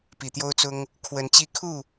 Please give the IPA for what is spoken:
p i˨˩ t̪ j o˦ ʊ̯ t͡s ʊ˦ ŋ | kʰ w ə˨˦ n t͡ɕ i˦ kʰ u˥˨

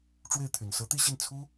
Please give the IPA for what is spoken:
ʈ͡ʂ w e˥˩ ɪ̯ t̪ʰ y˨˩ n s ɤ˧˥ t̪ i˥˧ ɕ i˥˩ n t͡sʰ u˥

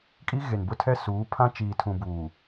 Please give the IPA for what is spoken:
kʼ i˦ ɣ e˨ n b ʊ˦ tʰ ɛ˦ s uː˨˦ pʰ ã˦ t͡ʃ iː˨ tʰ ũ˨ b uː˨

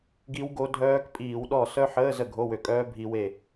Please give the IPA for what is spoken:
ɡ i˦˥ w ɡ o˦˥ dʱ œː˦˥ k pʼ iː˧˩˧ w ɗ ɔ˥˩ s œ˦˥ ħ əː˧˥˧ z ə˥˩ ɡʱ o˧˥˧ w ø˧˩˧ kʼ œː˦˥ bʱ i˦˥ w e˥˩

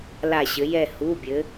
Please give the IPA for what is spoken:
l a˧˩ ɕ ɘ˩˧ j ɛ˧˩ h u˩˧˩ bʲ ɘ˩˧

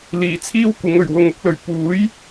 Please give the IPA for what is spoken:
l iː˨˩ t͡sʰ iː˥ w kʷ ɪ˨˧ ŋ ɵ˨˩ ɥ w ʊ˨ ŋ ʊ˧ k̚ l ɵ˨˩ ɥ p uː˨˥ j

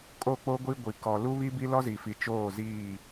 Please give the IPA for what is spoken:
kʼ o˦˨ k͡p o˦ ɡʷ i˦ ɡʷ i˨ k ɔ˨ l u˦ β i˦ b i˦ l ɔ˦ z i˨ f i˨ t͡ʃ oː˦˨ z iː˦˨

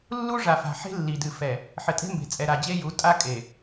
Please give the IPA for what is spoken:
lː u˦ ʐ a˨ f a̤˨ ħ e̤˦ lː i˨ d ɨ˨ f ɛ˨ | ħ ɘ˨ tʼ e̤˦ m b e̤˨ t͡sʼ ɛ˨ ɾ a˨ d͡ʑ e˦ j u˨˦ tʼ a˦ kʼ e˨

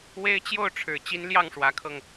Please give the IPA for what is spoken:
w e˦ ɪ̯ t͡ɕ j o˥˨ ʊ̯ ʈ͡ʂʰ ɻ̩˨˩ t͡ɕ i˦ n l j ɑ˥˨ ŋ ʂ w ä˨˦ kʰ ɤ˧ ŋ

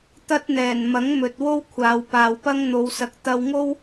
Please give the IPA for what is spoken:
t̪ ɐ˥ t̚ n̪ ɛː˨˩ n m ɐ˨˥ ŋ m ɵ˨ t̚ w o˥ w kʷʰ aː˨˧ w p aː˨ w p ɐ˥ ŋ n̪ o˨˧ w s ɐ˨˥ k̚ t̪ ɐ˧ w ŋ o˥ w

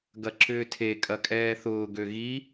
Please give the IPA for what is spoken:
ɡ ɐ ǁ ʏː tʰ e kʼ ɐ kʼ ɛː θ ʊː ɡ ø ɣ i

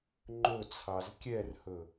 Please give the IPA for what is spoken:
ŋ͡ǃ ɵ t͡sʰ ɑ z kʲ ɛ r h ɵ

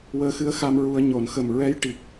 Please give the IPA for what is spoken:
w əː˧ x ɨ˧˥ ə̯ x a˧ m ɹ u˧ ə̯ ɲ o˨˩˨ n x ə˨˩ m ɹ ɛ˧˥ j ʈ i˨˩ k̚

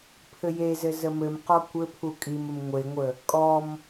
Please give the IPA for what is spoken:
pʰ ɘ j e z ɘ z ə m ɘ m q ɔ kʷ ɘ pʰ u kʼ i m ə m ŋʷ e ŋʷ ə | kʼ ɔ m

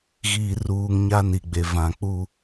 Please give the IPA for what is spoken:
ɣ iː˨ r uː˨ ŋ ɲ a˦ n i˨ ɡ͡b e˨ v ã˨ k͡p u˦

